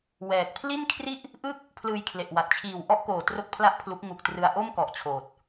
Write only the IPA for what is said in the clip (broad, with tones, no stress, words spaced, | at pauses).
wɛː˨˩k̚ pʰli˥˩nkʰri˥˩ʔ | ʔɯ˥˩k̚ | pʰlɯː˧jkʰle˨˩ʔwa˨˩t̚ t͡ɕʰiː˨˩w ʔɔ˥˩ʔkoː˨˩ tro˥˩k̚pʰla˥˩ʔpʰlu˦˥k̚ ŋu˨˩k̚ trɯ˧a̯ ʔoː˥˩mkɔ˨˩ʔ t͡ɕʰoː˨˩t̚